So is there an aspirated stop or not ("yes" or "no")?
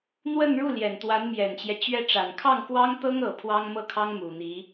yes